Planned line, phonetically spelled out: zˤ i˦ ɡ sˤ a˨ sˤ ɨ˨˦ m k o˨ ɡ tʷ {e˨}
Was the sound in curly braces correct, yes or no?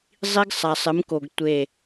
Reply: no